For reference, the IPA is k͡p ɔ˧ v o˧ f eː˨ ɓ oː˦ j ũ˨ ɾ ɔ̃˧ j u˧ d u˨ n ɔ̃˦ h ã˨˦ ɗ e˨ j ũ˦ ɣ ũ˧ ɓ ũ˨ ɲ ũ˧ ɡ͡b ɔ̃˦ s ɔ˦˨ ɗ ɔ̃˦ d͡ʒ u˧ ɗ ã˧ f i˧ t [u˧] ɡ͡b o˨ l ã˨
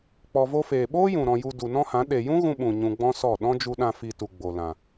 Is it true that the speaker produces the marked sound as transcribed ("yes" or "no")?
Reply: no